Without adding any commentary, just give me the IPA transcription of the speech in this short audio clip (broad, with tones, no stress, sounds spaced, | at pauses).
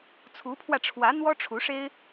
t͡sʰ u˧˥ pʰ w ä˧ ʈ͡ʂʰ w ä˧˥ n̪ w ɔ˥ ʈ͡ʂʰ u˧˥ ʂ e˥ ɪ̯